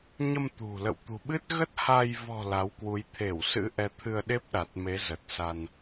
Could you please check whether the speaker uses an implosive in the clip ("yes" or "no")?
yes